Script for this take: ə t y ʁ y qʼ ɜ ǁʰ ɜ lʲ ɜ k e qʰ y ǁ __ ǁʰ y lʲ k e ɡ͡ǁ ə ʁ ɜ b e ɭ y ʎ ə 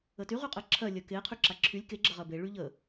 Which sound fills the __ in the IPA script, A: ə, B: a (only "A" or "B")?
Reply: B